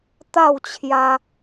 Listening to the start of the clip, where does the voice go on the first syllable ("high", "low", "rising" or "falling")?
falling